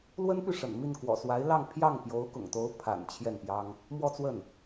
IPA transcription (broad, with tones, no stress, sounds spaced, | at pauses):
l w ə˥ n p y˥˩ ʂ ə̰˨˩ n m i˥˩ n k w ɔ̰˨˩ s w a˧˥ ɪ̯ l ɑ˥˧ ŋ pʰ j ɑ˥˩ ŋ p j o˧˥ ʊ̯ k ʊ̰˨˩ ŋ t̪ o˧˥ ʊ̯ pʰ a̰˨˩ n t͡ɕʰ j ɛ˥˩ n p j ɑ˥ ŋ | m w ɔ˥˧ t͡s w ə˥˩ n